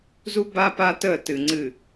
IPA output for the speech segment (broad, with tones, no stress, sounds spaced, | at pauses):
z u˦ b a˦ p a˦ t ə˦˨ t ɨ˨ ŋ͡ǀ ɨ˨